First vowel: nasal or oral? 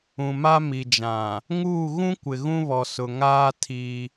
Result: nasal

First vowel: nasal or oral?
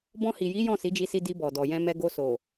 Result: nasal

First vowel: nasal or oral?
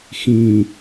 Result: nasal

